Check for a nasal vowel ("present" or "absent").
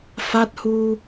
absent